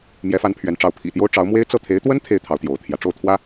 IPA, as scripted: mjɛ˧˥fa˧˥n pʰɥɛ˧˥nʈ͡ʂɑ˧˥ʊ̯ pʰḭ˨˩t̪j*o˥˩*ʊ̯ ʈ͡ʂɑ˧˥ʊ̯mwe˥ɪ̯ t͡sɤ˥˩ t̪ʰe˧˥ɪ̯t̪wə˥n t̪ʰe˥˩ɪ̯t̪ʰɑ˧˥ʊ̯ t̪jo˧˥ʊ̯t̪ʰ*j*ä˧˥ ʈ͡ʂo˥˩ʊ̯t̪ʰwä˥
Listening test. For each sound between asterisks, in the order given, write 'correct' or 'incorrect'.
incorrect, correct

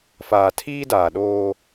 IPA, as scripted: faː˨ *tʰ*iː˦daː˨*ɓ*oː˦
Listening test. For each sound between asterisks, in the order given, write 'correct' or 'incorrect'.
correct, incorrect

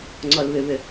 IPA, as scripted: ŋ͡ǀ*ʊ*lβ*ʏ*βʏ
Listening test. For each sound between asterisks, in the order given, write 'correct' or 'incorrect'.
incorrect, correct

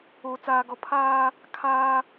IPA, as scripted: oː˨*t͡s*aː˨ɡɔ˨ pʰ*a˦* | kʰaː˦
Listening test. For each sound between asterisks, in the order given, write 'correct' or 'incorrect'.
correct, incorrect

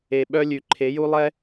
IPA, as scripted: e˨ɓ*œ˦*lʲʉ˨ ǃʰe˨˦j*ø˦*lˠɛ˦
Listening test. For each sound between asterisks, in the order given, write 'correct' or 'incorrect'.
correct, incorrect

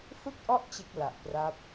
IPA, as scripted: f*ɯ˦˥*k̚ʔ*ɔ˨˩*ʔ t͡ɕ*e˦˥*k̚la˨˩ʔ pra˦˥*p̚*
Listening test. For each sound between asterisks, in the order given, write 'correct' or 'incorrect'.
correct, incorrect, correct, correct

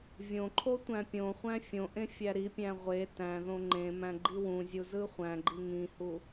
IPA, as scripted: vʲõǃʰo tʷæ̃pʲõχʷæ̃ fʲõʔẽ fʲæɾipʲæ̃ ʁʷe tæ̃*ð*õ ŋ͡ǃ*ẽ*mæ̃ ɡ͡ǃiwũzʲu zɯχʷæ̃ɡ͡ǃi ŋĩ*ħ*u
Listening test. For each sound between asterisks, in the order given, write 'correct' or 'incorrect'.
correct, correct, incorrect

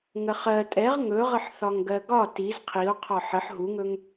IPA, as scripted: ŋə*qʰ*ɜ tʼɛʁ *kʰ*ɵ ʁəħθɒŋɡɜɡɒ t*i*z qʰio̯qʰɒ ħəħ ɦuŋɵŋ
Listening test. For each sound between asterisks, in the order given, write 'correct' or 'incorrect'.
incorrect, incorrect, correct

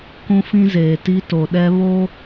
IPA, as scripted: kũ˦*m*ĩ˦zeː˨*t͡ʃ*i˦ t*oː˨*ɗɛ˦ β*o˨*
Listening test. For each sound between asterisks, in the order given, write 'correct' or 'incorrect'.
incorrect, incorrect, incorrect, incorrect

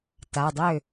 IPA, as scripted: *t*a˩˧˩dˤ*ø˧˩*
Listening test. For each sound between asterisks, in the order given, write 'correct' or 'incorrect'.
correct, incorrect

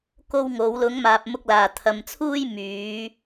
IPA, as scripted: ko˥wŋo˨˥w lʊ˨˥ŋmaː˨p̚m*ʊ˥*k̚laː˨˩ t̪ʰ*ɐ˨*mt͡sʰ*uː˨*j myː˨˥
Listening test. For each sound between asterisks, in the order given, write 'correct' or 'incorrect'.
incorrect, correct, incorrect

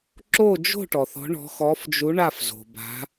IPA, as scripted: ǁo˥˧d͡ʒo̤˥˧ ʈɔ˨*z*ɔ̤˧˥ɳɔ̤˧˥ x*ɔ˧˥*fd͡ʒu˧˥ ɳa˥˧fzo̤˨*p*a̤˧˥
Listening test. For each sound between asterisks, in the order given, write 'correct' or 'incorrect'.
incorrect, correct, incorrect

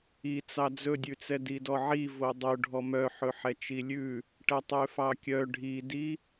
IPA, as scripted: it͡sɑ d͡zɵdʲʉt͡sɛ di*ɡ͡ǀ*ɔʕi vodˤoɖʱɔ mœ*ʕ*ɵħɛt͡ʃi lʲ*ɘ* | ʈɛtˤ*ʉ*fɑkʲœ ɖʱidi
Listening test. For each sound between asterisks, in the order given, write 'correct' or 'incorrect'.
incorrect, incorrect, incorrect, incorrect

